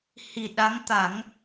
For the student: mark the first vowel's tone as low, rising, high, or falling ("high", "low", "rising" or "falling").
low